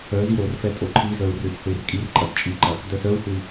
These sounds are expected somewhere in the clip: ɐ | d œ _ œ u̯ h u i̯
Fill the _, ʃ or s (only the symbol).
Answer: s